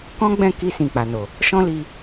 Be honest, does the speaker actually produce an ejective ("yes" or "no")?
no